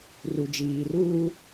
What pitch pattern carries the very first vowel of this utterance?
low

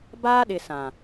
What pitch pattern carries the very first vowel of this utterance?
high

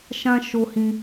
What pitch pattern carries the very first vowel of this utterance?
high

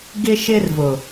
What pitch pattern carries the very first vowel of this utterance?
high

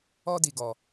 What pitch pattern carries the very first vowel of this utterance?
high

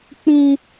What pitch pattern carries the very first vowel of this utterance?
high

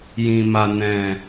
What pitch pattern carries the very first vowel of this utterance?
low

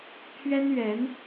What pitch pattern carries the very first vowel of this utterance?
high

